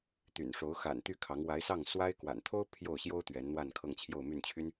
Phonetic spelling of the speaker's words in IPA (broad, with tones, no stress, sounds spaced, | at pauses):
t̪ y̰˨˩ n ʂ o˧˥ ʊ̯ x a̰˨˩ n t̪ y˥˩ kʰ ɑ˧˥ ŋ w a˧˥ ɪ̯ s ɑ˥˩ ŋ s w a˥ ɪ̯ k w a̰˨˩ n t̪ʰ o˥ ʊ̯ pʰ j o˥˩ ʊ̯ ɕ j o˥ ʊ̯ t̪ ɥ ɛ˧˥ n n̪ w a˥˧ n kʰ ɤ˥˧ ŋ t͡ɕʰ j o˥˧ ʊ̯ m y˥˩ n t͡ɕʰ y˥ n